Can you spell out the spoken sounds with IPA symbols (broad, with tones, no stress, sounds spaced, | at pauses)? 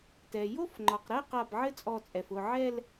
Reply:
t ɛ˩ j o˥˧ f ŋ͡ǃ ɒ˩ q ɾ ɛ˥˧ q a˧˩ b ʕ ɘ˥˧ t͡sʼ ɔ˧˩ t͡sʼ ɛ˩ f ʊ˧˩ ʕ ɛ˥˧ l